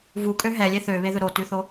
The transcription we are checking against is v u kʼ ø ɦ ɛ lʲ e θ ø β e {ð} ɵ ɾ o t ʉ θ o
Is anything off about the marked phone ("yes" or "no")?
no